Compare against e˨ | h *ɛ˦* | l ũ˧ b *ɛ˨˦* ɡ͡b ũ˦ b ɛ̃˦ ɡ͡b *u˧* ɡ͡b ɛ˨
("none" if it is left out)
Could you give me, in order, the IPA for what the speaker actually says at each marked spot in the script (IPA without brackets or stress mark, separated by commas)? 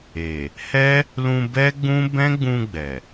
ɛ˦, ɛ˦, ũ˧